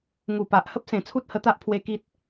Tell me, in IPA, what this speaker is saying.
ŋ u˨˩ p a˨ ʔ h ə˦ p̚ s ẽ˨˩ t͡sʰ u˦ t̚ h ə˧ t̪ a˦ ʔ pʰ w e˧ k i˦ t̚

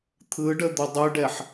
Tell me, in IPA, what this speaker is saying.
t̪ʰ ɯ ɖ ə d̪ ʊ dˤ ɯ ɖ ɛ ħ

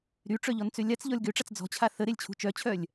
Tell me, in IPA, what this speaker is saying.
ɾ y ʈ͡ʂ œ ʎ ɔ n t͡s ø lʲ a t͡s ʎ ɔ lʲ ɡ ø ʈ͡ʂ a t͡s d͡z ɔ̤ t͡ɕʰ a θ ə ɾ e lʲ t͡ɕʰ ṳ t͡ʃ œ t͡ɕʰ œ lʲ

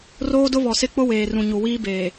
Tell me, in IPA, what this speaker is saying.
r oː˦ d ʊ˦ β ɔ˨ s ɪ˦ k͡p ʊ˦ w eː˨ r ũ˨ ɲ u˨ w iː˦ b eː˨

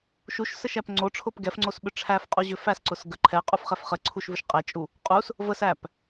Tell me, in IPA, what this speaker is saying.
ʃ u ʃ s ə ʃ æ p ŋ͡ǀ o ʈ͡ʂʰ ʊ p ɡ ɛ f ŋ͡ǀ o s ɓ ʏ ʈ͡ʂʰ æ f qʼ u ʑ ʏ f æ s ǀ ʊ s ɡ ə ǃʰ ɛ qʼ u f χ ɛ f χ ə ǀʰ u ʃ v ʏ ʃ qʼ ɛ t͡ʃʼ u | qʼ u s | v ə s æ p

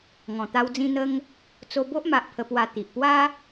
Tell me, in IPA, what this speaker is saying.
ŋ ɔ̃˨˩ t̪ a˧ w d͡z ĩ˧ n̪ ə˧ ŋ | t͡s o˧ b o˦ ʔ m a˨ ʔ pʰ ə˧ p w a˧ t̪ i˨ ʔ p w a˦

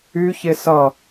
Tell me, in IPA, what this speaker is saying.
y ç e s ʌ

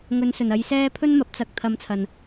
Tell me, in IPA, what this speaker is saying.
ŋ ɵ˨˧ n s ɵ˨˩ n ɐ˨˧ j s ɛː˧ pʰ ɵ˥ n m ɐ˨˥ p̚ t͡s ɐ˧ k̚ t̪ʰ ɐ˧ m t͡sʰ ɐ˨ n

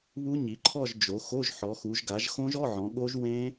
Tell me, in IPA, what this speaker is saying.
β u˦˥ ɲ i˩˧ ǃʰ ɔ˥˧ ʒ d͡ʒ o˩˧ x o˧˥˧ ʒ ħ ɔ˩˧ x u˩˧ ʒ ɡ a˩˧ ʒ x õ˦˥ ʒ ɔ˧˥˧ ʕ ɔ̃˩˧ ɠ o˦˥ ʒ w ẽ˦˥

